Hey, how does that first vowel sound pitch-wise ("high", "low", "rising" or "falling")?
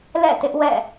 falling